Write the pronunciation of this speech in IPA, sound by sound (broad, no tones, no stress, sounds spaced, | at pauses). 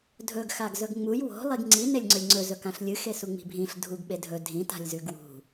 dʱ ɵ ɡ x a ɡ z ɵ ɡ ŋ͡m u j w o̤ lˠ i ɡ ŋ͡ǀ i n e lʲ ŋ͡ǀ ɵ lʲ ŋ͡ǀ ɵ z ɵ k ã ɬ lʲ ɨ x e s u ŋ͡m i̤ bʱ ĩ ɬ dʱ u ɡ ɓ e dʱ ɵ dʱ ĩ t a̤ lʲ z ʉ ɡ w ṳ